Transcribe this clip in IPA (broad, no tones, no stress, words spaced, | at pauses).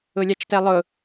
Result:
ʊlʲat͡ʃtɛlˠʊ